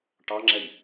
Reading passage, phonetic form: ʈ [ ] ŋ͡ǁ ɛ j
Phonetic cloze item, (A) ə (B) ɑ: B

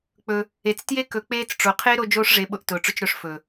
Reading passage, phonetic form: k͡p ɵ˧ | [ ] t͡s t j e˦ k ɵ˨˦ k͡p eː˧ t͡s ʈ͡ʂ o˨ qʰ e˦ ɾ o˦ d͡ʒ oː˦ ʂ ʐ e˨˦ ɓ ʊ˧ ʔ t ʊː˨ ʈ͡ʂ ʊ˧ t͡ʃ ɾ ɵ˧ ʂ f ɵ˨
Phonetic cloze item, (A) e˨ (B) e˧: A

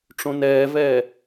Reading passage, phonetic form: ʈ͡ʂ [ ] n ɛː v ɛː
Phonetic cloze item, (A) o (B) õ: B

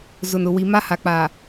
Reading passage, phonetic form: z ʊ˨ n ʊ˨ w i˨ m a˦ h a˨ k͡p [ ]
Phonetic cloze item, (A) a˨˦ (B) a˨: B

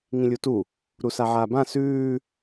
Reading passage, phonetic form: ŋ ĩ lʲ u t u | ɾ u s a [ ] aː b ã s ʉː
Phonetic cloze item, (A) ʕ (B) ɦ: A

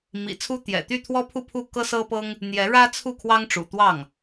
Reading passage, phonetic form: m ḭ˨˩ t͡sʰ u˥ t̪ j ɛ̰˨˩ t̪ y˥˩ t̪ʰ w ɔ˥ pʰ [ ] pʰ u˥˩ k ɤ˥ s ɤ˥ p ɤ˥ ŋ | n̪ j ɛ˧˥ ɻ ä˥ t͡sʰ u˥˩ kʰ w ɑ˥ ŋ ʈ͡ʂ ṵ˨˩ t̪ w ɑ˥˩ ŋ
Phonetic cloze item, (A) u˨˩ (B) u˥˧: B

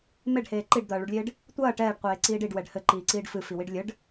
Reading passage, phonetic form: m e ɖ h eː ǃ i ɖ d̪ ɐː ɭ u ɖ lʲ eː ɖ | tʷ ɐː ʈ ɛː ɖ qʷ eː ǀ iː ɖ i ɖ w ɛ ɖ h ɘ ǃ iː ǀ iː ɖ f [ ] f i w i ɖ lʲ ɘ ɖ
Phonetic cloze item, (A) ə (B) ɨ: B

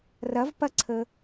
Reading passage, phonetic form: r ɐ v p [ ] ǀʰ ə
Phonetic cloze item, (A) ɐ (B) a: A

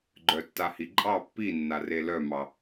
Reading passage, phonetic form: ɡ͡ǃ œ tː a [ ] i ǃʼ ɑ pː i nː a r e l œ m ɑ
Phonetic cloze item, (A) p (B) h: B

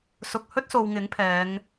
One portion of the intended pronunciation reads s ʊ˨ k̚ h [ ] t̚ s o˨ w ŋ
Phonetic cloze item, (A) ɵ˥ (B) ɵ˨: A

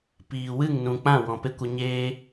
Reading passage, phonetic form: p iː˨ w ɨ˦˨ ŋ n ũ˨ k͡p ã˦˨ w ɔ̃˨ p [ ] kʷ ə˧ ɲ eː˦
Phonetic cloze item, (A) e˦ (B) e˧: A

